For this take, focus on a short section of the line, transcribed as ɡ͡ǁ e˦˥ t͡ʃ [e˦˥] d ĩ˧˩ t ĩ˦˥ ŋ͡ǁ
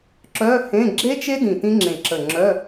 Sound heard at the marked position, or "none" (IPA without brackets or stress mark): e˦˥